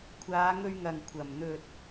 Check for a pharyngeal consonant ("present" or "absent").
absent